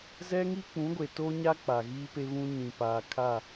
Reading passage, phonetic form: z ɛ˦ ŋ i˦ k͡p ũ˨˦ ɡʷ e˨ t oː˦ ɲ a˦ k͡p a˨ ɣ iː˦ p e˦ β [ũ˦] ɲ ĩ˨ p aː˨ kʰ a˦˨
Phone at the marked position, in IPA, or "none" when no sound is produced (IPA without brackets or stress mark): ũ˦